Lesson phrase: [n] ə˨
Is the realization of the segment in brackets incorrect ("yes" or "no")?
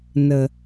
no